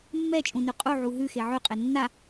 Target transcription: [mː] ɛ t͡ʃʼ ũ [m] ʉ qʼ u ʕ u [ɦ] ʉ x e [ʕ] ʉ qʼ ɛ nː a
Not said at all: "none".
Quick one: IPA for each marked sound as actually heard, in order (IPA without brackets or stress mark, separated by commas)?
mː, n, ɦ, ʕ